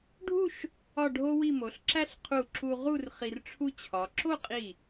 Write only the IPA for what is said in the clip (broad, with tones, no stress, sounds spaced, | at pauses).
ɖʱ u˥˧ ʃ | ɒ˥˧ ɖʱ o˥ w i˥˧ m o˩˧ ɬ ǁ æ˥ ɬ qʰ u˧˩ ǁ u˧ ʁ u˥˧ r χ i˧ r ʈ͡ʂʰ u˥ t͡ɕʰ ɒ˩˧ ǁ o˥˧ qʼ i˧˩